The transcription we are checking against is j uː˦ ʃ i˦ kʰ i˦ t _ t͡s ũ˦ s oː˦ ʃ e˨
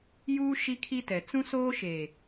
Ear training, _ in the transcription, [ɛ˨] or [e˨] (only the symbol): ɛ˨